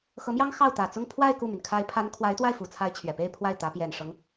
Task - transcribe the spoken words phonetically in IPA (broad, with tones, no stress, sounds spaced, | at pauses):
x ɤ˧˥ m j ɑ˥ ŋ x ɑ˥˩ ʊ̯ t̪ ä˨˩ t͡s ʊ˥˧ ŋ pʰ w a˥˧ ɪ̯ k u˥˩ m y˩ n kʰ a˧˥ ɪ̯ pʰ a˧˥ n kʰ w a˧˥ ɪ̯ t̪ w a˥˩ ɪ̯ f u˨˩ t͡sʰ a˧˥ ɪ̯ t͡ɕʰ ɥ ɛ˨˩ p e˥˧ ɪ̯ pʰ w a˥˩ ɪ̯ t̪ ä˧˥ p j ɛ˨˩ n ʂ ɤ˦ ŋ